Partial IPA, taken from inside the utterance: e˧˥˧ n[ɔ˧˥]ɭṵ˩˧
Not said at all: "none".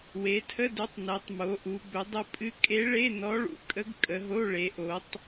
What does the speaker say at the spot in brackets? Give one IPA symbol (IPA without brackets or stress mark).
ɔ˧˥